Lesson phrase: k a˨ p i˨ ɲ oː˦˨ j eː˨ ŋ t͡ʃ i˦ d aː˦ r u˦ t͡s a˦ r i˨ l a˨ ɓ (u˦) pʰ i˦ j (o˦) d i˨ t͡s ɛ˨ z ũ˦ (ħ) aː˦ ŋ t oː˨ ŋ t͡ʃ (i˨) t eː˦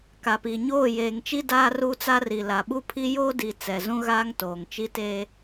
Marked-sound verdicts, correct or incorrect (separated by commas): correct, correct, incorrect, incorrect